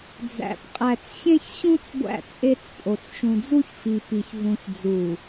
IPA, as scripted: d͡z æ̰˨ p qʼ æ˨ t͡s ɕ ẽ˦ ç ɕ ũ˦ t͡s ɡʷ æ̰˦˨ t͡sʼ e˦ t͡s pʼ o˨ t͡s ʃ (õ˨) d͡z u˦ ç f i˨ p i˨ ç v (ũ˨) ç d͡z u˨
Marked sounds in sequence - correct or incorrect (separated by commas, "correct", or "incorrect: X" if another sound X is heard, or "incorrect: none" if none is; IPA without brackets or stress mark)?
incorrect: ũ˨, correct